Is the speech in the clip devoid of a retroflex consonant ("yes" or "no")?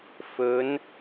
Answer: yes